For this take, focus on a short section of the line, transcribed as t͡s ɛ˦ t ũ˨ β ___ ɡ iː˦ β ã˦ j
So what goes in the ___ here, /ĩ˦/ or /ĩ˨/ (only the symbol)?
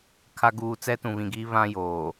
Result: ĩ˨